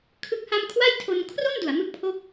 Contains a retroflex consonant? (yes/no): no